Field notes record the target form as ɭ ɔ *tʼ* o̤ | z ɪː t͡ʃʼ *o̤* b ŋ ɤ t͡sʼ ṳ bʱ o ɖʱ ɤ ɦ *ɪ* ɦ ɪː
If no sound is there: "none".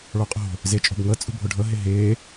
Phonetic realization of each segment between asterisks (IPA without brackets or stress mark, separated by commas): qʼ, o̤, ɪ